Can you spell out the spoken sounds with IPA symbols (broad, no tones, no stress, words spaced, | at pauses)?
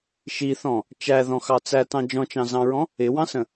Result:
ʃiθɔ̃ | t͡ʃæðɔ̃xɑ t͡sætɑ̃ d͡ʒɔ̃t͡ʃɑ̃zɑ̃ɹɔ̃ | ɪwɑ̃sə̃